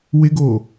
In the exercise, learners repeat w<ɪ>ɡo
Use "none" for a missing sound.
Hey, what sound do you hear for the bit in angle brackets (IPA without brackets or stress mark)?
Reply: ɪ